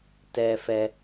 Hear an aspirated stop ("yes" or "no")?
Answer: no